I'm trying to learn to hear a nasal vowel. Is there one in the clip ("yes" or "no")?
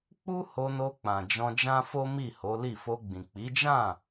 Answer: yes